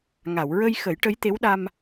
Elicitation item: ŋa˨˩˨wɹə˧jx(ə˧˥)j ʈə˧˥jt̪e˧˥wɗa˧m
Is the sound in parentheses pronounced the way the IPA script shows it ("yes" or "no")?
no